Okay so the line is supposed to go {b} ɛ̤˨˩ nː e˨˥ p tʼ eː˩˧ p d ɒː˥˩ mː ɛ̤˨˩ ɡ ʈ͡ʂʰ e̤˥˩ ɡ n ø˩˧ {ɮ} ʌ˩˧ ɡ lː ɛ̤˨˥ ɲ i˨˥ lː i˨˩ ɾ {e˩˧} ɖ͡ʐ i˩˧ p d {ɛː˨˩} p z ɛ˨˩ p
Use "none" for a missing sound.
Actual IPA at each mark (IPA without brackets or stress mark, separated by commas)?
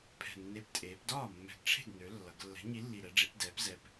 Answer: pʰ, lː, ɛ˩˧, ɛː˩˧